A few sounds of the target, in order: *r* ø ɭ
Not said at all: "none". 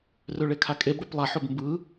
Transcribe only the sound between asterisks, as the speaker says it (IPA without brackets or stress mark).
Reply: r